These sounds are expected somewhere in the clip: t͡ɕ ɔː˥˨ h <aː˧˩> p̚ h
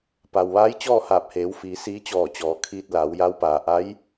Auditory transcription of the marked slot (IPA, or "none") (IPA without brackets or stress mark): aː˧˩